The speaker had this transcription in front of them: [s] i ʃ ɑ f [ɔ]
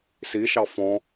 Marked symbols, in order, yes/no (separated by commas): yes, no